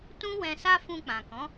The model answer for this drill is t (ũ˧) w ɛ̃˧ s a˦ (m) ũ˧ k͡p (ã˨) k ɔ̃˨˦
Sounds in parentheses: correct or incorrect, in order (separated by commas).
incorrect, incorrect, correct